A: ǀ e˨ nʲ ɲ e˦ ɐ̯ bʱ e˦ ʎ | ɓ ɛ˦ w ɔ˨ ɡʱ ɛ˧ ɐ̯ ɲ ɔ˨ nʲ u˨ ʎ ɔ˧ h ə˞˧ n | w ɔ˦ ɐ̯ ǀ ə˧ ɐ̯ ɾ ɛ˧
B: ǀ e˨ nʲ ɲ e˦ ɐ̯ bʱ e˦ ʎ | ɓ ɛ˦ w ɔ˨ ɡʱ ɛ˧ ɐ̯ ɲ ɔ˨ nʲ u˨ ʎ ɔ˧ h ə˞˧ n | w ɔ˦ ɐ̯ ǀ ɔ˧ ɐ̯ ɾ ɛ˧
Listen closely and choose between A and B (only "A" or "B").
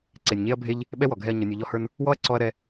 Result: B